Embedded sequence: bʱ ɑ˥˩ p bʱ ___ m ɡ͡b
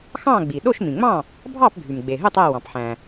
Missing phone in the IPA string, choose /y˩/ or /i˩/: y˩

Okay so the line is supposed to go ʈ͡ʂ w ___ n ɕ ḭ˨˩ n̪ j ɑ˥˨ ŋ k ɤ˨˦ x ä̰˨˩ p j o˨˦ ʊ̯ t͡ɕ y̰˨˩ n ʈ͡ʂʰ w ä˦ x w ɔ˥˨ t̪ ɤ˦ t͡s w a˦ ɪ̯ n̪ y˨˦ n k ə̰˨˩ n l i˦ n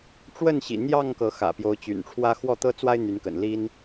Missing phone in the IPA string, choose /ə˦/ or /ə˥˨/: ə˥˨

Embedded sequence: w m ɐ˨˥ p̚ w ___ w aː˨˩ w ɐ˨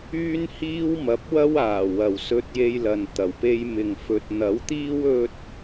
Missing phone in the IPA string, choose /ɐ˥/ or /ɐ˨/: ɐ˥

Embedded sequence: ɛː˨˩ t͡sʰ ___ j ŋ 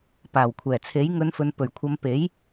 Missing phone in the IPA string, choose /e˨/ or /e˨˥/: e˨˥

